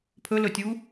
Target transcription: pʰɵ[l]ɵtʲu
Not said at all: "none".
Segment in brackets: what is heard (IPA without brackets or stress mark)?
l